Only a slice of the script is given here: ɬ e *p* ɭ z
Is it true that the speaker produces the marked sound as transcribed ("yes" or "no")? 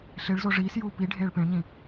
no